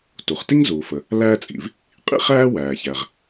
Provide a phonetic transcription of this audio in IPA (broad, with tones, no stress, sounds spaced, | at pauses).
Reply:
t u˩ χ t i˥ ŋ z uː˩ f ə˩ | l æː˥ t͡sʼ ḭ˩ v | qʼ ḭ˥ χ æː˥ w æː˩ ç æ˩ ʁ